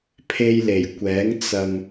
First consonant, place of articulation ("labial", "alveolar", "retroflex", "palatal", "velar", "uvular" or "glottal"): labial